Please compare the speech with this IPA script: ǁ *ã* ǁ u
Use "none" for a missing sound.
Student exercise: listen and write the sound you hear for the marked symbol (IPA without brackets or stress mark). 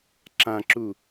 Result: ã